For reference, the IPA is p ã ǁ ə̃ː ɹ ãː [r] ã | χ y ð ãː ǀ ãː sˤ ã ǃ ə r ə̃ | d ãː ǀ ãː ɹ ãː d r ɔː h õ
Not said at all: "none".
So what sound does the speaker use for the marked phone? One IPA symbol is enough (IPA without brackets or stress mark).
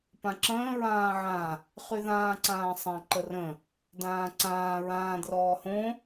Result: ʕ